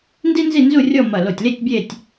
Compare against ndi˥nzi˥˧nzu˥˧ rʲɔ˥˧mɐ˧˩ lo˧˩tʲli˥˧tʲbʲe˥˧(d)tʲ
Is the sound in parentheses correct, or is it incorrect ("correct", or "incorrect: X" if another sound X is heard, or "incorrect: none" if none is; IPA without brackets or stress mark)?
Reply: incorrect: none